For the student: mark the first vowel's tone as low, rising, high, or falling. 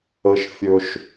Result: high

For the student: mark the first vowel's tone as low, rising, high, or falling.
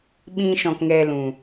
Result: high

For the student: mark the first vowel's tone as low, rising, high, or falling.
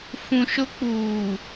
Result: low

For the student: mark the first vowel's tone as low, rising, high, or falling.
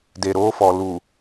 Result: low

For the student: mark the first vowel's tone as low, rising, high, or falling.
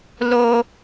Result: high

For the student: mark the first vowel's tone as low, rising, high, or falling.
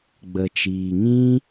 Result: low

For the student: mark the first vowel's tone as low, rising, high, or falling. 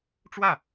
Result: falling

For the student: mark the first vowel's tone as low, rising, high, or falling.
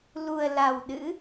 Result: low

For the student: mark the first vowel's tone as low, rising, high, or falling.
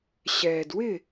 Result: low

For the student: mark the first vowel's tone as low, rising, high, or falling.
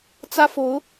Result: high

